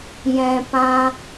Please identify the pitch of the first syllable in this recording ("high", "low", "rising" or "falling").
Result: low